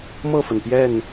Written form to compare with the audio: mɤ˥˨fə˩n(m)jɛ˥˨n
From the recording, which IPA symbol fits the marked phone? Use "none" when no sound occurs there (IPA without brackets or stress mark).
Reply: p